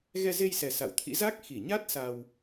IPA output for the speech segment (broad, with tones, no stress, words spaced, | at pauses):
ɣɛ˧ze˧jsɛ˨˩ sa̰˧˨wt̪ʰḭ˧˥ za˦˥k̚ xi˧˩ɲa˦˥t̚ sa˧w